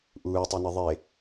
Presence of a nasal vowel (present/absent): absent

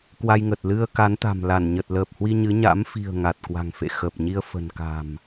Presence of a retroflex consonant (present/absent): absent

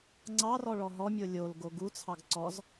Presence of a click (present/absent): present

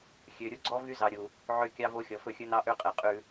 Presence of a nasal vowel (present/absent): absent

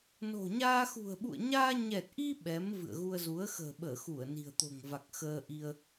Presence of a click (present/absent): absent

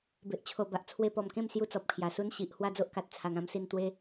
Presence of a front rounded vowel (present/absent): absent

